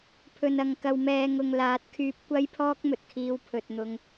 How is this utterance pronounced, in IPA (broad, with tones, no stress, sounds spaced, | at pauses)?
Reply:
pʰ ɵ˨ n ɐ˨ ŋ k ɐ˨ w m ɛː˨ ŋ ʊ˨ ŋ l aː˨˥ t̚ kʰ yː˧ p̚ kʷ ɐ˥ j pʰ ɔː˥ k̚ m ɵ˨ t̚ kʰ iː˧ w pʰ ɵ˨ t̚ n̪ ʊ˧ ŋ